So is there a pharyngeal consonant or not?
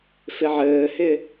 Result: yes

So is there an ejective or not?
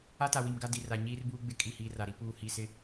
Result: yes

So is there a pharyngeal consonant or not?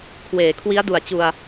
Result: no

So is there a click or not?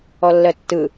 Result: no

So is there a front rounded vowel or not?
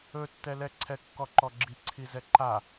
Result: no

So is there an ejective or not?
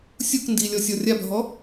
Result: no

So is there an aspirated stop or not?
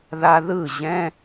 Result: no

